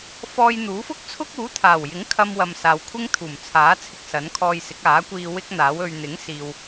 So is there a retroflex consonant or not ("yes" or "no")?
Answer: no